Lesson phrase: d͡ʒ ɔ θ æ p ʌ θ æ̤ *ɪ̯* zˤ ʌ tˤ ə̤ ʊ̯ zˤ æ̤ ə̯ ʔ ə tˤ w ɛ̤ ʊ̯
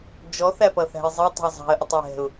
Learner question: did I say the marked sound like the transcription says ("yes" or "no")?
yes